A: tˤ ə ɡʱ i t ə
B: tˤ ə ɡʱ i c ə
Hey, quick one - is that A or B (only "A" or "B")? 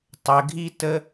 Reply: A